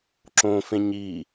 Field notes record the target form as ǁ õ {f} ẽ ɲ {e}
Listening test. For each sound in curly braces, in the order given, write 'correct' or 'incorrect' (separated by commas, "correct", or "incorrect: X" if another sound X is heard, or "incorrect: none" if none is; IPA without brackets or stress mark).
correct, incorrect: i